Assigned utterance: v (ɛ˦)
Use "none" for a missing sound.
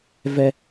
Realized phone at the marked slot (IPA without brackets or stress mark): ɛ˦